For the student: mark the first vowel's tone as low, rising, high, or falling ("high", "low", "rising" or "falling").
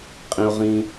low